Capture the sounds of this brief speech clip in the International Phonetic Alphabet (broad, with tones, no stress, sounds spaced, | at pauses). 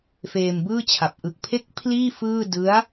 f eː˧ m b ɯː˥˩ t͡ɕʰ a˨˩ p̚ ʔ ɯ˨˩ k̚ pʰ e˦˥ k̚ pʰ l iː˥˩ f ɯː˥˩ d ɯ˦˥ a̯